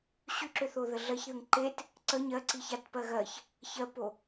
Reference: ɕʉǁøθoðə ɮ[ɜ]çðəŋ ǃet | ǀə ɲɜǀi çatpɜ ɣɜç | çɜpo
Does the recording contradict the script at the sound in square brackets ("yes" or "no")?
no